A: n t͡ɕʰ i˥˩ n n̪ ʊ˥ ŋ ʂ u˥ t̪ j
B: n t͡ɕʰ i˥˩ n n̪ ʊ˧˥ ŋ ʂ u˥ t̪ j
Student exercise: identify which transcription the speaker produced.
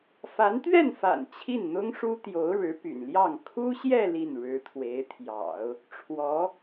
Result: A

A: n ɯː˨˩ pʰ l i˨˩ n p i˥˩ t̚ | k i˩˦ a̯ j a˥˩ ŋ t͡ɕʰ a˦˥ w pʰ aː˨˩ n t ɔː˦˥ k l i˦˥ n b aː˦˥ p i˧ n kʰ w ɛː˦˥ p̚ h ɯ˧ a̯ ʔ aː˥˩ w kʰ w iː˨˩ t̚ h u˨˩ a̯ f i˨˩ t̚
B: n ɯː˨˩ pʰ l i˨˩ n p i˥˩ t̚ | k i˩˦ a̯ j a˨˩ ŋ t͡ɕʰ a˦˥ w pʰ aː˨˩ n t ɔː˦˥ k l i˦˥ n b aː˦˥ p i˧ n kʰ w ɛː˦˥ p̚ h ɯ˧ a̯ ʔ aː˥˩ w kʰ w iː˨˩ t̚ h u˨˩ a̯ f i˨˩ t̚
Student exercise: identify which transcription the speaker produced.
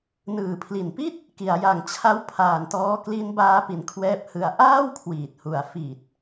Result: B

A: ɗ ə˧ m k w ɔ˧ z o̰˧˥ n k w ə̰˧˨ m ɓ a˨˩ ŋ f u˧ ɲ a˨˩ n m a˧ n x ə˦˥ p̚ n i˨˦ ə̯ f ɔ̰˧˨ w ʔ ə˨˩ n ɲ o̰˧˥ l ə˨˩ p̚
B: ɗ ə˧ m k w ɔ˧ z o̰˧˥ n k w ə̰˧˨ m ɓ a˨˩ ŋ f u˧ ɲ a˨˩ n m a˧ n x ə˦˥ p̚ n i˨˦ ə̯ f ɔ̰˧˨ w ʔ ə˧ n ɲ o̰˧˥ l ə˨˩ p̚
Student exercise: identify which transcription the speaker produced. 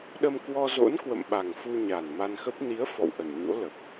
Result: A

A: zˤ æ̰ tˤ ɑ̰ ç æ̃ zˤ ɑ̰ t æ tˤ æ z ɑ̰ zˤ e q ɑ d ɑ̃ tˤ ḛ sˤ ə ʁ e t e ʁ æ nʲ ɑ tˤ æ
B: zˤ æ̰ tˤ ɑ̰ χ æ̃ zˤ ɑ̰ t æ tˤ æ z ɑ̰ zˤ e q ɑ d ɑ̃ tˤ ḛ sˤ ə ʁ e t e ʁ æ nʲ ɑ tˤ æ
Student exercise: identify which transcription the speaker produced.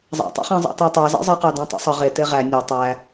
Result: B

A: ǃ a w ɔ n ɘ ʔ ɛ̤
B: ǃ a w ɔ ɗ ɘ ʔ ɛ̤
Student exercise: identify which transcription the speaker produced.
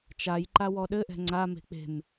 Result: B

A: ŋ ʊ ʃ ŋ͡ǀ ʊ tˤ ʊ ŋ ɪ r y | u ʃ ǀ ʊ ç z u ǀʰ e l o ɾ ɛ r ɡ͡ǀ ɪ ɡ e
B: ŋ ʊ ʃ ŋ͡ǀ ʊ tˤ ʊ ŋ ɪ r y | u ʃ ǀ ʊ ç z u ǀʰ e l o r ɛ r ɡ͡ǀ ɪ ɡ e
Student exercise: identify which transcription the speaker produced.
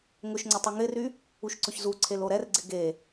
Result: A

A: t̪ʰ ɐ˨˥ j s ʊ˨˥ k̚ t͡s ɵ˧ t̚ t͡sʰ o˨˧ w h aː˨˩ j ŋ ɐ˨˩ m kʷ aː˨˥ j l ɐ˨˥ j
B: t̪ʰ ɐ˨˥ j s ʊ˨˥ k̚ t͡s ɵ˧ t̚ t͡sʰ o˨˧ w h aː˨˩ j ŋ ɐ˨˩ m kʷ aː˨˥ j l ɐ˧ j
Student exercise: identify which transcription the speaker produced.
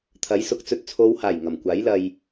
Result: B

